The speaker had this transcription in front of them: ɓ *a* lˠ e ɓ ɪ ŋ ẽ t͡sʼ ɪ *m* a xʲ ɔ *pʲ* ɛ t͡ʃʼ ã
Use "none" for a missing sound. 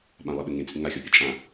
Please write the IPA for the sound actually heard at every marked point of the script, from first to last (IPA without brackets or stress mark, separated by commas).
ã, ŋ, pʲ